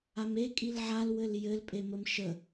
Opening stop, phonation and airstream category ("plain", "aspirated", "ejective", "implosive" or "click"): ejective